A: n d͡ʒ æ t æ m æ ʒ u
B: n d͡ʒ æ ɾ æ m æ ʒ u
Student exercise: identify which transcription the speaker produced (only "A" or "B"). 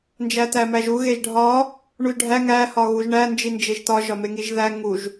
A